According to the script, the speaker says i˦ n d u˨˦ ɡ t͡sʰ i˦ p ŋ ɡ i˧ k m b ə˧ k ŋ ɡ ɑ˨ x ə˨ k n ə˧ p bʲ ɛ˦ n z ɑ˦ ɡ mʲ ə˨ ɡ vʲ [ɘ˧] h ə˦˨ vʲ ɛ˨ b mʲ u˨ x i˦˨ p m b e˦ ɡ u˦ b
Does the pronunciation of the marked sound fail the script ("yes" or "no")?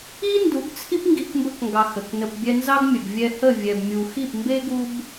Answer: yes